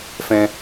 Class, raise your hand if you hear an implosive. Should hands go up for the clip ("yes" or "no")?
no